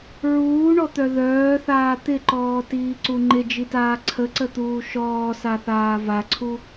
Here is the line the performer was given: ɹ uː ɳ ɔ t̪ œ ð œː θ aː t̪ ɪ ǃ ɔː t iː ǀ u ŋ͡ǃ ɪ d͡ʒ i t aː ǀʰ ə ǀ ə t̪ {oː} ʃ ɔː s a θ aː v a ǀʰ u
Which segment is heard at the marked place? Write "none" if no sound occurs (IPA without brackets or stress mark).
uː